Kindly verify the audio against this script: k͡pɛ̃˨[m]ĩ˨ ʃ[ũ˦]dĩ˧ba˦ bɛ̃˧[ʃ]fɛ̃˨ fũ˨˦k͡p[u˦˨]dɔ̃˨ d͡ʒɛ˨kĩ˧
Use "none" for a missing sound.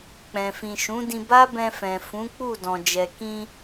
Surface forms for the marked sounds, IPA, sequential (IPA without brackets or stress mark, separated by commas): f, ũ˨˦, none, u˦˨